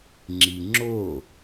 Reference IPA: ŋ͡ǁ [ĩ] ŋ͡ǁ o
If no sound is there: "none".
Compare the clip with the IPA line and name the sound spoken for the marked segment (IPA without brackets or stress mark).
i